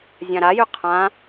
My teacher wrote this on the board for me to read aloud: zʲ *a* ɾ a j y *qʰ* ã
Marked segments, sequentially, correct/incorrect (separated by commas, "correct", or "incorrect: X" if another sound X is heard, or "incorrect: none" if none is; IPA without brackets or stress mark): incorrect: ã, correct